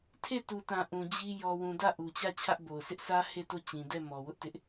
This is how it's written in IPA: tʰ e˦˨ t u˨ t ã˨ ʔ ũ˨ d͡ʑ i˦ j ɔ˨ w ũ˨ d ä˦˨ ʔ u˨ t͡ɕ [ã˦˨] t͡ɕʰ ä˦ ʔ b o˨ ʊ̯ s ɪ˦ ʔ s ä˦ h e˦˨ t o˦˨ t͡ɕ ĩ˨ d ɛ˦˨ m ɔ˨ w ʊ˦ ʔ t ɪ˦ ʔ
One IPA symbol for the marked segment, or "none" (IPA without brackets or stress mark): ä˦˨